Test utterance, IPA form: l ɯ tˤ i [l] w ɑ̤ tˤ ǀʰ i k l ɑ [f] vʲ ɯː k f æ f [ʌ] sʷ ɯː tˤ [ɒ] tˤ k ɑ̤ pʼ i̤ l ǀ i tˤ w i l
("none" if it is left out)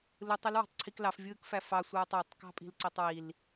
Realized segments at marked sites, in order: l, f, ɑ, ɑ

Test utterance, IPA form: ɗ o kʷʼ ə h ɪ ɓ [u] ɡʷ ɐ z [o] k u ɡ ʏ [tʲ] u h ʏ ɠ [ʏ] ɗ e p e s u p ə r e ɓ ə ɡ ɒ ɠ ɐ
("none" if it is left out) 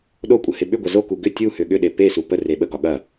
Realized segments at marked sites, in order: ʏ, o, tʲ, ʏ

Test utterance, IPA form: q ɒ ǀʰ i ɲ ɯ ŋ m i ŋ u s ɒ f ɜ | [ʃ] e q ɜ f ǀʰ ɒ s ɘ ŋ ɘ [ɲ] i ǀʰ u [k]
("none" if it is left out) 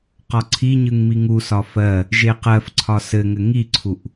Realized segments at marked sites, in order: ʒ, ŋ, ʔ

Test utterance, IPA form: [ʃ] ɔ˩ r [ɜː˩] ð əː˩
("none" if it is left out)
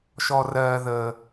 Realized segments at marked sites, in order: ʃ, ɜː˩

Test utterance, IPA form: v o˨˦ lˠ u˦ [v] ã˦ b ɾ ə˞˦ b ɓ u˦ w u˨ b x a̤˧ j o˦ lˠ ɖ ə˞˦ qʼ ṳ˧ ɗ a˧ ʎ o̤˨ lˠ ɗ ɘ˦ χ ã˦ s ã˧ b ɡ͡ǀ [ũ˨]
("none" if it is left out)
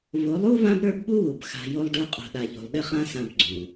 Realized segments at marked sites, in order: v, ũ˨

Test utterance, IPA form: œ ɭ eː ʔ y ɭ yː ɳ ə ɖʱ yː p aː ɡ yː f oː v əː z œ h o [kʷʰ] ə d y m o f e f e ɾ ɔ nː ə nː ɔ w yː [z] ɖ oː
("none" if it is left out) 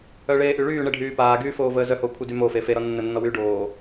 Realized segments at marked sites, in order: kʷʰ, none

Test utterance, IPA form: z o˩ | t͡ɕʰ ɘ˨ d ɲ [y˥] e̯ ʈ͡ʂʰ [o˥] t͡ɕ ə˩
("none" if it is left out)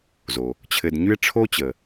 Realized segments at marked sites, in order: y˥, o˥

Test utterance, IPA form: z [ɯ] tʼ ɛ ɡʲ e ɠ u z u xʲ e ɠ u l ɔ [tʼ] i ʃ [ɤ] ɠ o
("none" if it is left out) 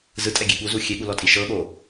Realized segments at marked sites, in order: ɯ, tʼ, ɤ

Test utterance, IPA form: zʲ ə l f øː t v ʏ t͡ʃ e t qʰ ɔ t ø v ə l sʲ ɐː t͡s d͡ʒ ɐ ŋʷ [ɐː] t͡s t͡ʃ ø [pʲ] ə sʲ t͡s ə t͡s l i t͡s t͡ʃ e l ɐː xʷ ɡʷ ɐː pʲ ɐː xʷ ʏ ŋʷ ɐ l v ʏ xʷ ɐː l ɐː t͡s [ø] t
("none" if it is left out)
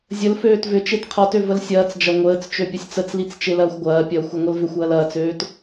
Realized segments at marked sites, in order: əː, pʲ, øː

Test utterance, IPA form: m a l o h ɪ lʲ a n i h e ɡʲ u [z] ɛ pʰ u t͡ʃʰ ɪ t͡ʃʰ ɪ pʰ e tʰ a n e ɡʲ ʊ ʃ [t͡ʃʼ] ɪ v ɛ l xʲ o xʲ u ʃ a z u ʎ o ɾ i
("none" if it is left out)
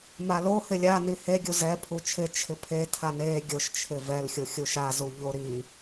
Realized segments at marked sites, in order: z, t͡ʃʰ

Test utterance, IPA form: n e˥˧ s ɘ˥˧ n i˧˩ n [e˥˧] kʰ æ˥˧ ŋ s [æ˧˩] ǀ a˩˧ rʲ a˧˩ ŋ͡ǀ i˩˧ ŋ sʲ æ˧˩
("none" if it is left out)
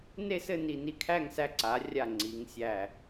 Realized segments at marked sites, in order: i˥˧, æ˧

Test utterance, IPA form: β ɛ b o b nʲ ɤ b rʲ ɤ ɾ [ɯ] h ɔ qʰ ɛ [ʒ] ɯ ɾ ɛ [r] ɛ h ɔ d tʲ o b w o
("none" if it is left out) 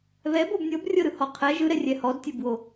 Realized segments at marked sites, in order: ɯ, ʒ, rʲ

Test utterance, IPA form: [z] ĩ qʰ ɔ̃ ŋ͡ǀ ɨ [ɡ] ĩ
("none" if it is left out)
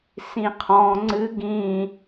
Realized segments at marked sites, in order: s, ɡ

